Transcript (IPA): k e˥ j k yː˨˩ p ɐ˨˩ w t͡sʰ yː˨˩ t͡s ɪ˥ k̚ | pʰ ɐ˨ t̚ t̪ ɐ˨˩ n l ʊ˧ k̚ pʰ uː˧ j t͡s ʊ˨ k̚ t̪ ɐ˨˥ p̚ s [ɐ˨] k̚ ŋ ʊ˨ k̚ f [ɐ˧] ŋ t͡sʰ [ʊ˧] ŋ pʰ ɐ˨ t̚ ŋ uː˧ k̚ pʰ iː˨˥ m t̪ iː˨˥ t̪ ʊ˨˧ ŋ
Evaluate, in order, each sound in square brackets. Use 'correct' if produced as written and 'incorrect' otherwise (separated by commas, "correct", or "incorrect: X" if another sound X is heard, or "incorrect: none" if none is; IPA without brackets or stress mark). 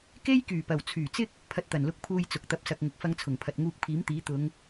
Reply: correct, correct, incorrect: ʊ˨˩